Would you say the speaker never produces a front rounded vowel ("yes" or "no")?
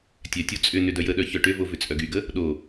no